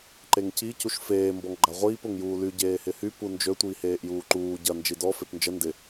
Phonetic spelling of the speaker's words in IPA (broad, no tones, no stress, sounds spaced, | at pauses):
ǃ e ŋ c i c u ʃ f eː m b ɔ ŋ ɡ͡ǃ a ʁʷ iː p ʊ ŋ j uː l y ɟ eː h ɪ h y p u n d͡ʒ ø tʷ iː h eː ʔ j uː ǃ uː ɟ ɐ n d͡ʒ i d ɔ f e p n d͡ʒ ə n d ɪ